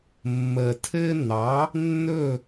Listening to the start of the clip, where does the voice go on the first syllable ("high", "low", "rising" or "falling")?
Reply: low